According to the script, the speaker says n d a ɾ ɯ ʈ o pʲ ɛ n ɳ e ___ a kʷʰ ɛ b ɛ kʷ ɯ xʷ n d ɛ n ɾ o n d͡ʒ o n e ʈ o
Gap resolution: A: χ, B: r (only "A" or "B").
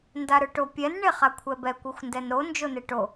A